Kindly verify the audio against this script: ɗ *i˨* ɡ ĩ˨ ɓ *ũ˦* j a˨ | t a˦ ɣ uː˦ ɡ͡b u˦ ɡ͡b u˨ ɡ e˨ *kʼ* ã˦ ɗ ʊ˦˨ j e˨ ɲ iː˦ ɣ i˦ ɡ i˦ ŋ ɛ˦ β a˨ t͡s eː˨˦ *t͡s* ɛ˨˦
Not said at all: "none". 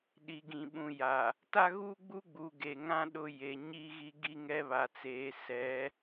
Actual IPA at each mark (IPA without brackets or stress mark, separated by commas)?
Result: i˨, ũ˨, ŋ, s